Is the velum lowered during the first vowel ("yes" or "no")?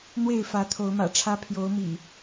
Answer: no